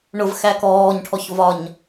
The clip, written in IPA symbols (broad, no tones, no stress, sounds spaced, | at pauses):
ɳ ʊ v x æ k ɔː ɲ ʈʰ ɔ ç v ɒ ɲ